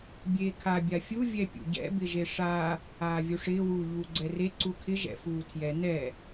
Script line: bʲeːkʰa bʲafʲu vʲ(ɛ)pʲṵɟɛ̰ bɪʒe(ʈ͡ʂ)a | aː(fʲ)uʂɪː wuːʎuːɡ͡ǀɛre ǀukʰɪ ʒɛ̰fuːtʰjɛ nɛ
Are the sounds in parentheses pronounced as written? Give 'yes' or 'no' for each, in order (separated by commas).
yes, no, no